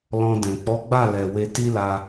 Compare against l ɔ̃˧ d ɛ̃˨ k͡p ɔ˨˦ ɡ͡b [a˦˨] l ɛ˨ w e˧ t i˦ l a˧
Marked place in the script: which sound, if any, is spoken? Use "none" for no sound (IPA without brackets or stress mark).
a˦˨